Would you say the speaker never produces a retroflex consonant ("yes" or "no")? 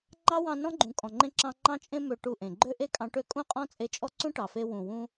no